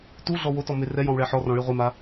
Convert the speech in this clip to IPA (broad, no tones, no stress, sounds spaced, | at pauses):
t u ɮ ɔ w o t ɔ m e r ɛ j ɔ̃ w ɭ ɛ ħ ɔ r ɔ̃ ɭ i ʁʷ i m a